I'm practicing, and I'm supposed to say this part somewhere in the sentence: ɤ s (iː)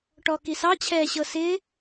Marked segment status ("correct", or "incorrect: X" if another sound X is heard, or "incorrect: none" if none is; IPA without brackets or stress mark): incorrect: ɪː